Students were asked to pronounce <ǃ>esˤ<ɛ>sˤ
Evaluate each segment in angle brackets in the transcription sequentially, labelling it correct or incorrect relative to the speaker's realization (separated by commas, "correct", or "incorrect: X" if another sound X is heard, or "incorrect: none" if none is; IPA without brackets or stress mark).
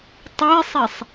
incorrect: tˤ, correct